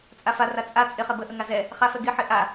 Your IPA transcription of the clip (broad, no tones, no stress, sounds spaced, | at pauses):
t͡sʼ a f a r a t͡sʼ a t͡sʼ ɪ χ ɛ b ə ʔ ə ŋ a z ɛ | χ a f ɛ ɡ ɪ ħ ɪ ʔ a